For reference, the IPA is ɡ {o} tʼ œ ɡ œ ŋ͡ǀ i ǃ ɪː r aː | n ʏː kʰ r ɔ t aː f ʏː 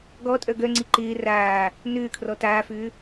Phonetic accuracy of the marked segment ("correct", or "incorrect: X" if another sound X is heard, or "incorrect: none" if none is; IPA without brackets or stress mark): incorrect: ɔ